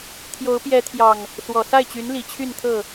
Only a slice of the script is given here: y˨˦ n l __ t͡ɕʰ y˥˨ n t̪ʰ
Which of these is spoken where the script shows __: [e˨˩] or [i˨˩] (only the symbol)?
i˨˩